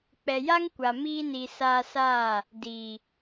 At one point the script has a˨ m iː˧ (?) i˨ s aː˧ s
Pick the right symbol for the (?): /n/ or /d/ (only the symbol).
n